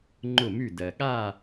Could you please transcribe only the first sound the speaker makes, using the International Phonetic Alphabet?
ŋ͡ǃ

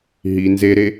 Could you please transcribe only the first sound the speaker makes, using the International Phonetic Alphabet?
ɦ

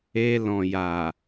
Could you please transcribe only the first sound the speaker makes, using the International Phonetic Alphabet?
e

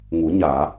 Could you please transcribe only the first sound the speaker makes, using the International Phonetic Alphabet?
ŋ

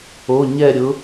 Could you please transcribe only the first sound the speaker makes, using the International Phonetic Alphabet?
o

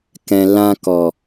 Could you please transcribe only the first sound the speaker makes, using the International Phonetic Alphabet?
k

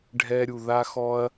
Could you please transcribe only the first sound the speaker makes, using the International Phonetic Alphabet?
ɖʱ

